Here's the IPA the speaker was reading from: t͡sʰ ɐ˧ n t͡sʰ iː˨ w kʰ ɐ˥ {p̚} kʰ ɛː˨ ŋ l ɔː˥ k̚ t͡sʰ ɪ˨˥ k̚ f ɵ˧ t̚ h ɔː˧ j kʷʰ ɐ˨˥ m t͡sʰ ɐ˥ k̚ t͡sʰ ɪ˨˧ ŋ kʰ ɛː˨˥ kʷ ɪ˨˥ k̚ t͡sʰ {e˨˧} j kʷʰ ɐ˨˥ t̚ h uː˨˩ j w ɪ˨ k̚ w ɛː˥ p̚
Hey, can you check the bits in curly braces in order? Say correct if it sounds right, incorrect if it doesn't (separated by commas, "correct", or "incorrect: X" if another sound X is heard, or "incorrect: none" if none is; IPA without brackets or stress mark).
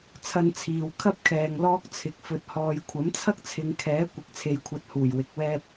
correct, incorrect: e˨